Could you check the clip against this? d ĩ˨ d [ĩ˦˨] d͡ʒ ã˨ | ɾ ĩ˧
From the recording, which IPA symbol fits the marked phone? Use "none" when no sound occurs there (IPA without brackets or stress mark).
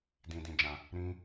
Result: ĩ˨